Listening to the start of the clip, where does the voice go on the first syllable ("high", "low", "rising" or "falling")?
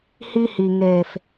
high